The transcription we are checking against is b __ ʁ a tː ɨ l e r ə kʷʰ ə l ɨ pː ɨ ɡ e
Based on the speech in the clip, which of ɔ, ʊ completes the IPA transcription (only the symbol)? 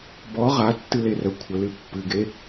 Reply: ɔ